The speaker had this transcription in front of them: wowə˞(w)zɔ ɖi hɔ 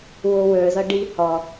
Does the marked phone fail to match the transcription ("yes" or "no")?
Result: yes